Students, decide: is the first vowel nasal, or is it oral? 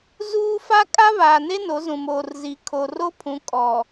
oral